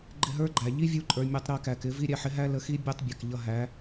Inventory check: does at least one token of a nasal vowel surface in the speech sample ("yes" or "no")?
no